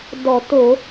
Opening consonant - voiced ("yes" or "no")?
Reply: yes